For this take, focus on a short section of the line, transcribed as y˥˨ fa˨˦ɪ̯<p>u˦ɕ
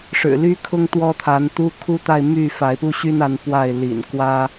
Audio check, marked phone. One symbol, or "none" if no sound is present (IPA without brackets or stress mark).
p